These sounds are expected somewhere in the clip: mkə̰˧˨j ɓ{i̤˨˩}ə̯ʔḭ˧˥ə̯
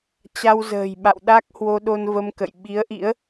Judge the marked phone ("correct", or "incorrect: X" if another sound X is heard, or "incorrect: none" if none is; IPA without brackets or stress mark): incorrect: i˨˦